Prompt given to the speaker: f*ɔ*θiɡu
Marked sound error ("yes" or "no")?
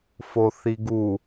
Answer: yes